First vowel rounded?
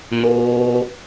yes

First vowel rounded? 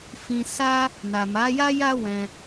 no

